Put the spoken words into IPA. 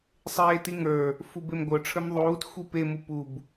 sˤ eː t i ŋ ə˞ | f u b e m ɡʷ ə˞ ʈ͡ʂʰ ə˞ m ðˤ uː t xʷ i p e m u p u b

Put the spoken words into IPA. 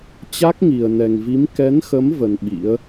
t͡ɕ a˦˥ k̚ ŋ i˨˩ ə̯ n ɛ˨˩ ŋ v i˨˦ m k ɛ˨˦ n x ə˨˦ m v ə˧ n ɓ ḭ˧˥ ə̯

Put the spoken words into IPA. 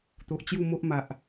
t̪ o˨ ʔ t͡ɕ j u˥˧ m o˦ ʔ m a˨ ʔ

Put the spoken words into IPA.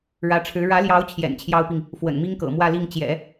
ɻ ä˧˥ ʈ͡ʂʰ ɻ̩˧˥ ɻ ä˧˥ l j ɑ˧˥ ʊ̯ t͡ɕʰ j ɛ̰˨˩ n t͡ɕʰ j ɑ˥ ʊ̯ p i˨ ŋ | f w ə̰˨˩ n m i˥ ŋ k ɤ̰˨˩ m w ä˥˧ l i˥˩ ŋ t͡ɕ j ɛ̰˨˩˦

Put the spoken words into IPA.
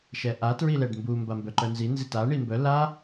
ʃ ɛ ʔ a t ɹ i l ɛ ɖ m b u m b a m b œ ǃ œ n z i n z i t a ɳ i m b œ l a

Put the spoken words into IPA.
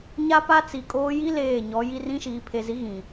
ɲ a˦ p a˦ t͡s i˨ kʼ oː˦ j i˦ l eː˦˨ ɲ ɔ˨˦ j i˦ r ĩ˦ ʃ iː˨ pʰ e˨ z i˨˦ ɣ ĩ˨

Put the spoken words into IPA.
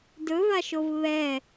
d ɵ v a ʃ o v β ɛ

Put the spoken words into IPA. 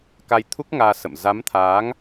k a˧ j t̪ʰ u˦˥ k̚ ŋ aː˧ s ə̰˧˨ m z a˨˦ m t̪ʰ aː˨˦ ŋ

